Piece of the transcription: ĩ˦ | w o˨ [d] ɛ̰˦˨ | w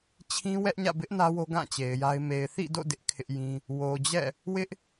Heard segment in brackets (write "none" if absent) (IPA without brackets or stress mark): d͡ʑ